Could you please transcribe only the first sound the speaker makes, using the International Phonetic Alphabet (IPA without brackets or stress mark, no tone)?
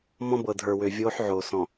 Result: m